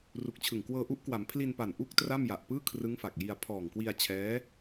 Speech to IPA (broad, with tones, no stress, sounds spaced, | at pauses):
r u˨˩ k̚ t͡ɕʰ ɯ˨˩ ŋ k w ɤː˧ ʔ u˦˥ ʔ k w a˩˦ m pʰ l i˧ n p a˨˩ n ʔ u˥˩ k̚ t r a˥˩ m j a˨˩ ʔ p ɯː˥˩ kʰ r ɯ˦˥ ŋ f a˨˩ k̚ j i˧ a̯ pʰ ɔː˨˩ ŋ k w i˧ a̯ t͡ɕʰ ɛː˦˥